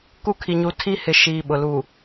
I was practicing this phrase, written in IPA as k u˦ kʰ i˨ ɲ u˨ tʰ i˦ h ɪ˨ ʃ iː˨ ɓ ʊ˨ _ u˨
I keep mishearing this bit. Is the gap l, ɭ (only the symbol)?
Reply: l